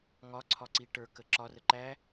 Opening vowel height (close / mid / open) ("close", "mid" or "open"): open